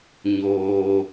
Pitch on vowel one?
low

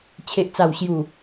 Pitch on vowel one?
low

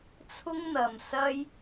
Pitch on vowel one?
high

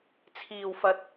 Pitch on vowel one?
low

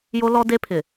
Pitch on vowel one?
high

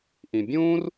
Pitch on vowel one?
low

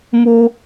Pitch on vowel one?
high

